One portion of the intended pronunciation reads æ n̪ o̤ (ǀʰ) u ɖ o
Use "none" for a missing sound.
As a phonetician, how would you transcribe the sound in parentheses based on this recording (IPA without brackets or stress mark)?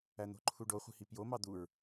ǃʰ